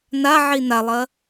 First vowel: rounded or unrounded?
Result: unrounded